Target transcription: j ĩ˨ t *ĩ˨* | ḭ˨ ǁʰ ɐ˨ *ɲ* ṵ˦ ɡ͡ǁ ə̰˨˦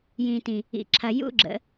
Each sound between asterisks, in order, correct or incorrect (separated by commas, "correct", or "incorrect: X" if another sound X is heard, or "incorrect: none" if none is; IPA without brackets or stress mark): correct, incorrect: j